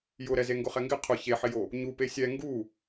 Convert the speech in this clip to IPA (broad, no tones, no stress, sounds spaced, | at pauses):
j ʊ ɾ ɛ z e ŋ ɡ ʊ χ ɛ ŋ ɡ ɪ qʰ ʊ ç e ħ ɪ j o | ɲ u p e sʲ ɛ ŋ ɡ u